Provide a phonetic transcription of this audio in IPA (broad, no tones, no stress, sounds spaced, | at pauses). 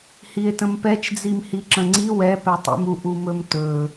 h i e̯ t ə̃ m p ɛ t͡ʃ d͡z i m h i ǁ ə̃ ŋ͡ǀ i w ɛ p ɛ tˤ ḭ m u ʔ u m ɵ m t ɵ